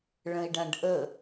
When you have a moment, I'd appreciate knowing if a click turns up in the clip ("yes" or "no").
no